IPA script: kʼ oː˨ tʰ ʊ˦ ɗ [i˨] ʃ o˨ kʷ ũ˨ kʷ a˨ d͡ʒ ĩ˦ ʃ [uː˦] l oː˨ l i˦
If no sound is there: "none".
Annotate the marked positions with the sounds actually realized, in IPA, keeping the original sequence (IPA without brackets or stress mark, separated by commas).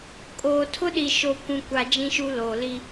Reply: i˨, u˦